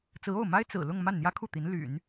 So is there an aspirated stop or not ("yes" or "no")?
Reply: yes